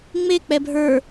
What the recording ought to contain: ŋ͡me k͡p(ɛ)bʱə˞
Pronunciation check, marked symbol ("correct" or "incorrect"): correct